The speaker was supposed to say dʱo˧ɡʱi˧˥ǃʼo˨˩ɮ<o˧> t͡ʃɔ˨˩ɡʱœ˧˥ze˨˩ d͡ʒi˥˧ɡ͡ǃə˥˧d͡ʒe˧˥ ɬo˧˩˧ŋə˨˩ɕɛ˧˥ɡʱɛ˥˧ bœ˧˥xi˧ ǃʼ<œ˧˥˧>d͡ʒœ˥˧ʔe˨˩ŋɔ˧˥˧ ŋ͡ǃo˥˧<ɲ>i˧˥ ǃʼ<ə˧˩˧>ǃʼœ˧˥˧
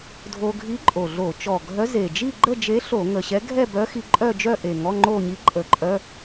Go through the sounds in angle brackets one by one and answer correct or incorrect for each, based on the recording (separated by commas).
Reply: incorrect, incorrect, correct, correct